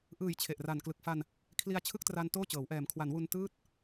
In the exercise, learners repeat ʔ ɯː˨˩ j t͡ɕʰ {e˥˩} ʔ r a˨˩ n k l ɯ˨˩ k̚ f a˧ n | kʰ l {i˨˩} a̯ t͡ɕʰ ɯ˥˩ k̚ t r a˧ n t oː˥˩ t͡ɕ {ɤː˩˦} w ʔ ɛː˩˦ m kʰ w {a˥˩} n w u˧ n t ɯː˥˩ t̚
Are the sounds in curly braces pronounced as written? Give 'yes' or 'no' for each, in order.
no, no, yes, no

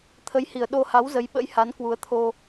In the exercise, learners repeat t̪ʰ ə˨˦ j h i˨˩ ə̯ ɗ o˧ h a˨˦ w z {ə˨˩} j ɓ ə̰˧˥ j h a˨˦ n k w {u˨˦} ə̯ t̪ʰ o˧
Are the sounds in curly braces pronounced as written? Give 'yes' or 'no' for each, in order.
no, yes

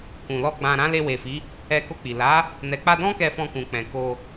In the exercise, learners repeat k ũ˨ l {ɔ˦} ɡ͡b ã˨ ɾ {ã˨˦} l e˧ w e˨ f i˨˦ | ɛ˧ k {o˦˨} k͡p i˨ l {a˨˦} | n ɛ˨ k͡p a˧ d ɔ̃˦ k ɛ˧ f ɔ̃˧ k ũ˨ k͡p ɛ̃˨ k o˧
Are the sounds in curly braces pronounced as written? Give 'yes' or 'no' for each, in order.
no, yes, no, yes

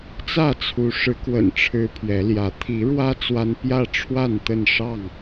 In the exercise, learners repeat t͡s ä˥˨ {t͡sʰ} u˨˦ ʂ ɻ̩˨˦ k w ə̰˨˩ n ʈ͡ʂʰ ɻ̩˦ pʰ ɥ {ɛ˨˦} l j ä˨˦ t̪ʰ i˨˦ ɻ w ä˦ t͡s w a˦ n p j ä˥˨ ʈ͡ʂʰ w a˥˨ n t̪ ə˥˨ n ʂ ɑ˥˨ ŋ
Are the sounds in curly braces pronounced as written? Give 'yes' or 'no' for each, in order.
yes, yes

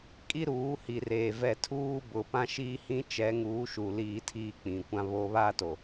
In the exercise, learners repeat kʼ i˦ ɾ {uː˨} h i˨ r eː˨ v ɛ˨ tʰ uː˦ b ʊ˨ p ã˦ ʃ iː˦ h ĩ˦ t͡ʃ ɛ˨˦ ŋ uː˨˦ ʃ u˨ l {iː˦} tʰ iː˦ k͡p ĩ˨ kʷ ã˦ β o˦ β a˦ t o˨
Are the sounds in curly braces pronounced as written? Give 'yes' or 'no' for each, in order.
no, yes

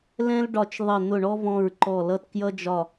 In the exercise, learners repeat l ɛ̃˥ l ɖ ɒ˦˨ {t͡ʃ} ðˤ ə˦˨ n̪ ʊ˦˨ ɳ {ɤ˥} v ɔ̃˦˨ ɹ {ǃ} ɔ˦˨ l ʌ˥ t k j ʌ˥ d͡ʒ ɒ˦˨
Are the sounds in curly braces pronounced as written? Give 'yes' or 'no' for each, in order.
yes, no, yes

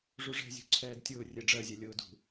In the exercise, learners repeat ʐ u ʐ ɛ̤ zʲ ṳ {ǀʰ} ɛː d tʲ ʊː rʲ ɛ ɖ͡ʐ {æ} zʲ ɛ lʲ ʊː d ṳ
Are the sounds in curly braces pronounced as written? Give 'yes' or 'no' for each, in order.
yes, no

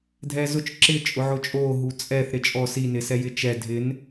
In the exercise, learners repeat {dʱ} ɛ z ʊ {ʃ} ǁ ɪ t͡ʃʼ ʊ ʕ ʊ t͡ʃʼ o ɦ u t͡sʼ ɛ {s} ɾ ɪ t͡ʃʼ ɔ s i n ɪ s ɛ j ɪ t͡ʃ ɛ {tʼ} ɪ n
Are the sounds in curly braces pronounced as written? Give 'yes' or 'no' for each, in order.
yes, no, no, no

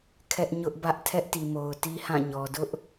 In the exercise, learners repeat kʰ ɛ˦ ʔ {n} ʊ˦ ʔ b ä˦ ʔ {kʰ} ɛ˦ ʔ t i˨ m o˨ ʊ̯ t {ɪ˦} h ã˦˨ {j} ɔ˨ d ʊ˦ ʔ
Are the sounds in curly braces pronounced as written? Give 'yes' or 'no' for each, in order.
no, no, no, no

